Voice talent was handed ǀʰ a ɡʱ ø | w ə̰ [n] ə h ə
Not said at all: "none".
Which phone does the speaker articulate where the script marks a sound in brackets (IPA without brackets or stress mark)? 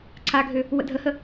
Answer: dʱ